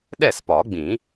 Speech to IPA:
ɗ ɛ˥˩ s p ɒ˨˩˦ ɡ͡b ĩ˨˩˦

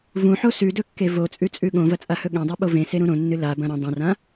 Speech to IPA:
v ũ ħ o s ʉ d ɵ kː e v o t͡sʼ ʉ t͡sʼ ʉ ɠ õ v ɐ t͡sʼ a h ɵ ɠ ẽ dˤ ɨ ɓ o v ẽ s e ɾ ũ ɾ õ nː ɨ l a b ɐ̃ ɾ ɐ̃ dˤ õ r ã

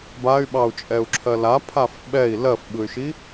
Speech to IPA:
b a y̯ ɓ ɑ u̯ t͡ʃʼ ɛ u̯ ǁʰ ɜ l a pʰ a f ɓ ɛ i̯ l ɜ f ɓ ɯ y̯ ʃ i

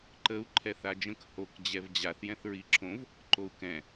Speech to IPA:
ǃ ə u̯ ǃʰ ɛ θ a d͡ʒ ə̃ k h o k d͡ʑ ɛ v d͡ʑ a θ j ɛ̃ θ ɹ i ǁʰ õ v | ǃ o u̯ k ɛ̃

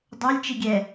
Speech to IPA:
dˤ ø lʲ t͡ʃ i ɡʲ ɛ

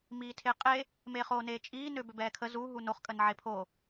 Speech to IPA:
m iː tʰ e qʼ e | m eː χ oː n eː t͡ʃʼ iː n ø b ø b ɛː kʰ ə z u ɦ u n o χ kʼ ə n ʕ e pʰ o

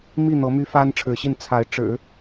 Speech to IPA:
m i˥˩ n̪ ɤ˧˥ m y˥ f a˥ n ʈ͡ʂʰ ɻ̩˧˥ ɕ i˥˩ n t͡sʰ a˧˥ ɪ̯ ʈ͡ʂ ɻ̩˨˩˦

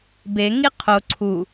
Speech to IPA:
b e ŋ i qʰ o ǀʰ u

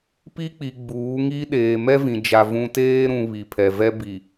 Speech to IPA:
p i˦ k͡p i˨ ɡ͡b uː˨˦ ŋ i˦ ɗ eː˨ m ɛ˦ v ĩ˨ d͡ʒ a˨ v ũ˨ t eː˦ ɾ ũ˨ β i˨ pʰ ɛ˨ v ɛ˦ b i˨

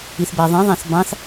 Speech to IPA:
i θ b æ ðˤ ĩ ðˤ æ̃ θ b ɑ̃ θ

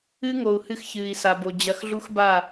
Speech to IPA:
ɨ˦ ŋ o˨ u̯ h ɨ˦ x ç ɨː˨ i̯ s a˨ b o˨ d͡ʑ ɐ˨ x ɮ u˦ x b a˦˨

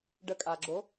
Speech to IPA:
ɖ ə kʼ a ɡ͡ǁ o

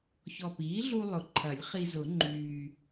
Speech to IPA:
ç ɔ˨˩ p iː˩˥ ɮ u˧ lˠ ʊ˨˩ ǃʰ ɐ˨˩˦ lʲ χ i˧ z ʊ˨˩˦ ŋ͡ǃ yː˨˩

